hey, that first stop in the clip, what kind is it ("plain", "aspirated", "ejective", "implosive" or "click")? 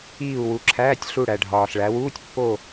click